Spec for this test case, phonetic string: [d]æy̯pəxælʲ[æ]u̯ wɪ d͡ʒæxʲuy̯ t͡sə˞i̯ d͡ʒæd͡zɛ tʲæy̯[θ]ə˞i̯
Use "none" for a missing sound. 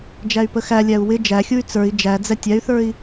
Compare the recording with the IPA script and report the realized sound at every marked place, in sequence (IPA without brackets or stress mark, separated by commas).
d͡ʒ, æ, θ